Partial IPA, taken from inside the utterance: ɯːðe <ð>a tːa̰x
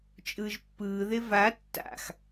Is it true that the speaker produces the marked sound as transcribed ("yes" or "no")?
no